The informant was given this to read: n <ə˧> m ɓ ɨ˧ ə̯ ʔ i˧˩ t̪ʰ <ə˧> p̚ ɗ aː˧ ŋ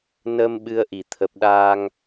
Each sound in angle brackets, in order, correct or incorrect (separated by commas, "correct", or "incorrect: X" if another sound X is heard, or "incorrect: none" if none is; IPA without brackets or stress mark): incorrect: əː˧, incorrect: ə˨˩